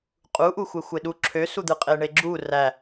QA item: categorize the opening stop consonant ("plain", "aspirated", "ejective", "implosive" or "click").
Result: ejective